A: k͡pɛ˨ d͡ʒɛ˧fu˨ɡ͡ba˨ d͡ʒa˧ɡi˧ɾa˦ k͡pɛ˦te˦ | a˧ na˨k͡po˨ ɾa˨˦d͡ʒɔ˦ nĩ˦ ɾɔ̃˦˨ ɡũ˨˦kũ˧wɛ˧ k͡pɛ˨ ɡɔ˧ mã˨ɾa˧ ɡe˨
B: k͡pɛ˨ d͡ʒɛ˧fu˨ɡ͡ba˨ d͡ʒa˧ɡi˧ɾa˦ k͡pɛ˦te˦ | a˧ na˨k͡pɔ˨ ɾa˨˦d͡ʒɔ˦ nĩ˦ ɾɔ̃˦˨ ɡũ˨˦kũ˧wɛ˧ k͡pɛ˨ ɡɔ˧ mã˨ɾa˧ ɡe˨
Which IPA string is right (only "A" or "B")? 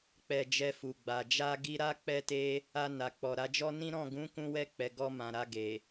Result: B